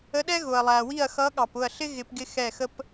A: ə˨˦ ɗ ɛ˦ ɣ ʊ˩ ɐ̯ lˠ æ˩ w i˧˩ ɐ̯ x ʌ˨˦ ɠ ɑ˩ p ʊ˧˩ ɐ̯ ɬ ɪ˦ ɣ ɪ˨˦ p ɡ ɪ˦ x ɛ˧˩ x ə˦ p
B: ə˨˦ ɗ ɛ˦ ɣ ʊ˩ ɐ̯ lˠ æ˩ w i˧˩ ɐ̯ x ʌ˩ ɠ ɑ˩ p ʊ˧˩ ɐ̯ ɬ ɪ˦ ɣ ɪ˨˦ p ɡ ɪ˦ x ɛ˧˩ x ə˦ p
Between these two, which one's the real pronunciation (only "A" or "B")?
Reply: A